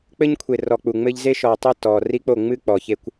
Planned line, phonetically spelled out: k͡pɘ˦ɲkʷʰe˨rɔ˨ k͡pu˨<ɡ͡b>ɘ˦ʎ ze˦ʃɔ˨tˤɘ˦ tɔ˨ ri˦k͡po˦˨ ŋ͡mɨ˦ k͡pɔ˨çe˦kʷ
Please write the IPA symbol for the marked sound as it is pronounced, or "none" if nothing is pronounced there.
ŋ͡m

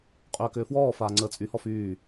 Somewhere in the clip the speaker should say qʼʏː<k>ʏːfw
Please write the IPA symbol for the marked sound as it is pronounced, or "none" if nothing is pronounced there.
k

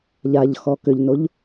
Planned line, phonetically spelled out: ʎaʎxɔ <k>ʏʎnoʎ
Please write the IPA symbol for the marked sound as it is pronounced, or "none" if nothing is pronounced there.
k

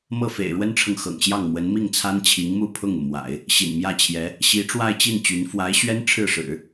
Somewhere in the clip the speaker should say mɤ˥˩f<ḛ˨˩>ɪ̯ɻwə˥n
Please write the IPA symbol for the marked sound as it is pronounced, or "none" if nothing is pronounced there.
ḛ˨˩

